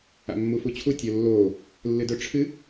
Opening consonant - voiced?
yes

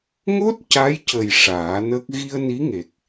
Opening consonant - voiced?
yes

